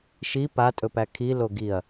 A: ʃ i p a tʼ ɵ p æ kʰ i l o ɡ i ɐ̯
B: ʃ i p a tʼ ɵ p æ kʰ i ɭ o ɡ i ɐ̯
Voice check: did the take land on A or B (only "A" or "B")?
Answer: A